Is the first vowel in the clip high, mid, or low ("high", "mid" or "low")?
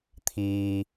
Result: high